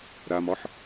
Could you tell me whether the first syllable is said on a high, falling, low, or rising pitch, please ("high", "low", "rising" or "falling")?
low